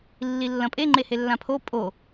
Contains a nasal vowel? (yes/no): yes